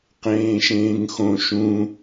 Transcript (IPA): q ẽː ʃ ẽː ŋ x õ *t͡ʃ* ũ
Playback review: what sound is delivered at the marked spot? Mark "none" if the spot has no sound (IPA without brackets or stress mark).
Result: ʃ